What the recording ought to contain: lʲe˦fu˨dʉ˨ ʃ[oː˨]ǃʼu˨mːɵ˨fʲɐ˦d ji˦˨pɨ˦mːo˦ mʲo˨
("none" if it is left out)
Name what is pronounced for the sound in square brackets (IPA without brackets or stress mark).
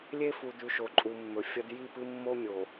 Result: o˨